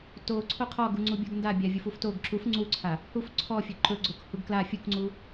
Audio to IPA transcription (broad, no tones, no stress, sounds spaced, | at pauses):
t o ǀʰ o qʰ ɔ ɡ u ŋ͡ǀ u bʲ o ɡ n d a bʲ a vʲ u f u f t o ɡ ǁ u f ŋ͡ǀ u ǀʰ a | h u f ǀʰ ɔ fʲ ɵ ǃ ɵ ɡ͡ǀ o k h u ɡ k l a fʲ u k ŋ͡ǀ u